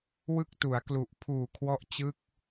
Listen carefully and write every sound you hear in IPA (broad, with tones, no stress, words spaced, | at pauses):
wɯ˥˩k̚tu˩˦a̯klu˨˩ʔ pʰuː˨˩kʰwɔ˦˥ʔ t͡ɕɯ˥˩k̚